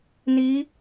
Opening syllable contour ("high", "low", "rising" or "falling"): rising